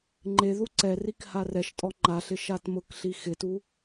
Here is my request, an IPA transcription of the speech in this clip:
ŋ͡ǃ e ð u ǀ ɛ r i k h a r ɛ ʃ tʼ ɔ ŋ͡ǃ a ɬ ɪ ʃ a t m ʊ k ɬ i x ɪ t u

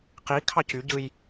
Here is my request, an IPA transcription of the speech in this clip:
q i kʰ ɑ c y ɟ ɯ j

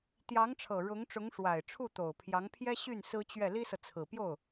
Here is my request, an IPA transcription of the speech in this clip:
t̪ j ɑ˧˥ ŋ ʈ͡ʂʰ ɤ˨˩ ɻ ʊ˧˥ ŋ ʈ͡ʂ ʊ˧˥ ŋ ʂ w a˨˩ ɪ̯ ʈ͡ʂʰ u˥˩ t̪ o˨˩ ʊ̯ pʰ j ɑ˧˥ ŋ pʰ j ɛ˥ ɕ y˥˩ n s ɹ̩˥ t͡ɕ ɥ ɛ˥˩ l i˥ s ɤ˨ t͡sʰ ɹ̩˨˩ p j o˥˩ ʊ̯

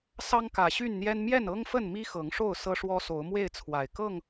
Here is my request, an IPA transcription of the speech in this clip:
s ɑ˦ ŋ k ä˨˩ ɕ y˥˨ n n̪ j ɛ˦ n m j ɛ˥˨ n ɤ˦ ŋ f ə˥˨ n m i˦ x ɤ˨˦ ŋ ʂ o˥˨ ʊ̯ s ɤ˦ ʂ w ɔ˦ s o˨˦ ʊ̯ m w e˥˨ ɪ̯ t͡sʰ w a˨˩ ɪ̯ k ɤ˥˨ ŋ

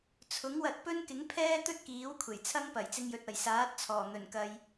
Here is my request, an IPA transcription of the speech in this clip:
t͡sʰ ʊ˨˥ ŋ w ɐ˧ t̚ p ɵ˥ n k ɪ˨˥ ŋ pʰ ɛː˥ t̪ ɵ˥ t̚ k iː˨˥ w kʷʰ e˨˩ j t͡sʰ ɐ˥ ŋ p ɐ˨˩ j t͡s ɪ˧ ŋ j ɵ˨ t̚ ɐ˨˩ j s aː˨˥ t̚ t͡sʰ ɔː˨˩ n̪ ɵ˨˩ n k ɐ˨ j

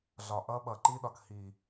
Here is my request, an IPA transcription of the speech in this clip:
ɮ ɒ˨ ʔ ʌː˦ ɓ ʌː˨ ǃ iː˦ ɗ ɒ˨ k h iː˨

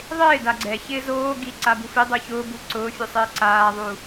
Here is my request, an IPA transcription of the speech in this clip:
ðˤ ɪː d a ɡ͡ǀ ɛ ç ɪː z oː ɡ i ǀ a b u f i dˤ u ç ʊː b u ǀ ʊː fʲ u sˤ ɪː ǀ aː ðˤ u

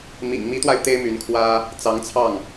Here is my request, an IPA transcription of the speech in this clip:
m ḭ˨˩ ŋ m i˧˥ t̪ w a˧ ɪ̯ t̪ e˥ ɪ̯ m y˧˥ n kʰ w ä˥ | t͡s ɑ˧˥ ŋ t͡sʰ ɑ˥˩ ŋ

